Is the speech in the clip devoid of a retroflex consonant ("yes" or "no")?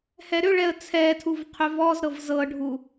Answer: no